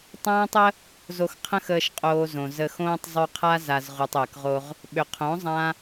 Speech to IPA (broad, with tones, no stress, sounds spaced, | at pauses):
tˤ ãː˦ tˤ ə˦ | z o˧ x qʰ ə̃˦ x əː˧ ʃ qʼ oː˧ z õ˨ z ə˧ x õː˦ tˤ zˤ y˧ qʰ a˦ z a˨ z ʁ u˨ tˤ əː˨ k ʁ o˧ ʁ | ɓ ʏ˨ qʰ õ˨˦ zˤ ã˦